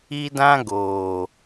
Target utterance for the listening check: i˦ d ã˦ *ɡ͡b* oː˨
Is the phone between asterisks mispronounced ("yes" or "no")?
yes